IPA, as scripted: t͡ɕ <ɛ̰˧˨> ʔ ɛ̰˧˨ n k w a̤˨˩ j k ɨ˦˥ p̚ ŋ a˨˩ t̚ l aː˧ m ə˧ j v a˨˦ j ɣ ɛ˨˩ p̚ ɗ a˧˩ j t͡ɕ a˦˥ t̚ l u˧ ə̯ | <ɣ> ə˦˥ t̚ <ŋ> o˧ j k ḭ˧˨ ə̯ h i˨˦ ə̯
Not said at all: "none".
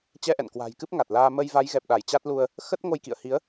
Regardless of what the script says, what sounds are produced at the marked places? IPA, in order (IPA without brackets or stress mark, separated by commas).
ɛ˧, x, ŋ